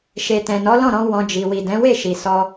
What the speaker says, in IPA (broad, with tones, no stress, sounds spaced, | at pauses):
ʃ e˨ t ɛ̃˨ n ɔ˨˦ l ɔ̃˦˨ ɾ ɔ̃˧ w ɔ̃˧ d͡ʒ i˨ w i˨ d ɛ̃˨˦ w e˦˨ ʃ i˨ s ɔ˧